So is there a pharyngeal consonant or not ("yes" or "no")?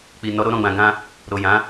no